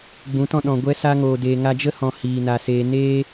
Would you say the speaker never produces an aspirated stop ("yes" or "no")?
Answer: yes